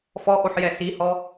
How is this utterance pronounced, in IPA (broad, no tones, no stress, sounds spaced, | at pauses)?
f ɔ ʔ o ħ j ɛ s i h ɔ